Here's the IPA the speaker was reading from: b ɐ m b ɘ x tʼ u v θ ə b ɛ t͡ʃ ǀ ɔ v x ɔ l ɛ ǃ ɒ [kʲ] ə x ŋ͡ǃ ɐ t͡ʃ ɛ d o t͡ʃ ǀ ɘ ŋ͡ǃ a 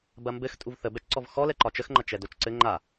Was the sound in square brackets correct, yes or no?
no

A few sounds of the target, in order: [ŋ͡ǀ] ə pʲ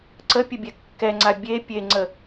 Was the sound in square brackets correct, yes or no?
no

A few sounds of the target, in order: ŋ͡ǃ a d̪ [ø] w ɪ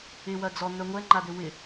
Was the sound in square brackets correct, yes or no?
yes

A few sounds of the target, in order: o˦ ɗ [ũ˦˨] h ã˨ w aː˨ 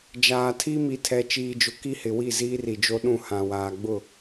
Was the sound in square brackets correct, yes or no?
yes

